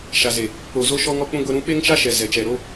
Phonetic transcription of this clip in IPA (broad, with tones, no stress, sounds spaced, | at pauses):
ʃ a˨ z e˨ | k͡p o˨ z o˦ ʃ ɔ˦ ŋ ɔ˦ k͡p ũ˦ ɡʷ ɛ˦ ɾ ũ˦ ɓ e˦ ŋ t͡ʃ a˦ ʃ ɛ˨ z ɛ˨ t͡ʃ ɛ˨ ɾ o˦